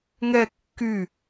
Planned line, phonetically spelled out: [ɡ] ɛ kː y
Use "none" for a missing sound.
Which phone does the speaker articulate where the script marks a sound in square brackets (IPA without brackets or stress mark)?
ŋ